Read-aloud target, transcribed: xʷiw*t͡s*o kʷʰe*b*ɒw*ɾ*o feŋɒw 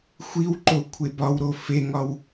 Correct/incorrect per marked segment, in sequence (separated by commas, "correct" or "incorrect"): incorrect, correct, correct